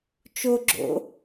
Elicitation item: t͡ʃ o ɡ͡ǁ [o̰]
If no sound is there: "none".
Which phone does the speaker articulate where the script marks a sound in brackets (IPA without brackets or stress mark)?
o̰